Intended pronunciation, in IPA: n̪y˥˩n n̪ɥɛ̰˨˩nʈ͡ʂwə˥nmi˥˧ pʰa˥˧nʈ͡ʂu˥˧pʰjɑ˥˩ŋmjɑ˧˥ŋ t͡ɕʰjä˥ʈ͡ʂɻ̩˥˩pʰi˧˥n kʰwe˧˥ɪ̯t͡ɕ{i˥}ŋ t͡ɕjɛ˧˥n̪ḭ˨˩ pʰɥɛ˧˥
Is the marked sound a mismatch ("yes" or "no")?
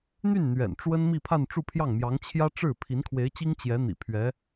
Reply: no